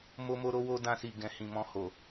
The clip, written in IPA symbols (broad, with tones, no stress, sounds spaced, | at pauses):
m o˦ m o˦ ɾ o˦ w o˦ d ã˧ s i˨ ɡ ɛ̃˨ h ĩ˨ m ɔ̃˧ h o˨